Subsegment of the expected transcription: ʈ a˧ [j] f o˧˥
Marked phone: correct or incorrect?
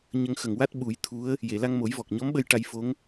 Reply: correct